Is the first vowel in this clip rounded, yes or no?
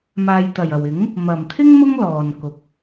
no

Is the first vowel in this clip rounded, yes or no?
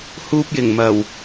yes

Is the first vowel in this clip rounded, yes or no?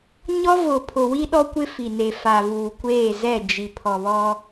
yes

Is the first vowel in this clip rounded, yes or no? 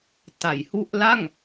no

